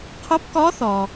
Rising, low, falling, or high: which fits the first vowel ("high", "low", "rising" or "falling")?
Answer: rising